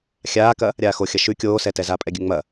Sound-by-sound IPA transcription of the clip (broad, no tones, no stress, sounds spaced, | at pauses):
xʲ aː k ɐ | ɾʲ aː x o xʲ ɐ ʃ ʉ kʲ oː s ɛ t ɛ z aː pʼ ɛ ɡʲ ʉ ŋ͡m ɐ